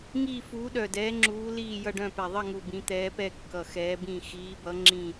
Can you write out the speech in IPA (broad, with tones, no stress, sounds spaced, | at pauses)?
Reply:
ŋ iː˦˨ f uː˨˦ ɗ œ˨˩ d ɛː˨˦ ŋ͡ǁ uː˨˦ l iː˦˨ j ʌ˦˨ ɖ œ̃˦˨ p ɛ˨˩ ðˤ ʌ˦˨ ŋ u˨˩ b ĩ˨˦ t̪ ɛː˨˦ p ɛ˦˨ kː ʌ˨˩ x ɛː˨˦ b ĩ˦˨ x iː˨˦ b ʌ˨˦ ŋ͡ǁ ĩ˦˨